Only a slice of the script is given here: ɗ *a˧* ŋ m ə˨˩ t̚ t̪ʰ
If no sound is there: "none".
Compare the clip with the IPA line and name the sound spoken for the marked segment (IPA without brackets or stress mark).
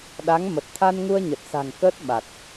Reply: a˨˦